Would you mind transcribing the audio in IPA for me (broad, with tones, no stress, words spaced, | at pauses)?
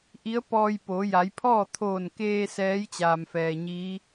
ʔi˧˥ə̯pɔː˧j po˩˧ja˩˧jpʰɔː˥˨ t̪ʰoː˧˩nkeː˧ sɛː˧˥jt͡ɕaː˩mfɛː˩ ɲiː˧˥